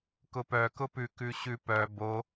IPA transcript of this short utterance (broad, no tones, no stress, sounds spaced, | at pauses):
k ʊ p œ k ʊ p ʉ k ʉ ɕ ʉ p œ b o